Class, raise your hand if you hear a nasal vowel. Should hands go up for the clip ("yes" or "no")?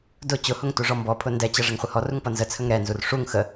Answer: no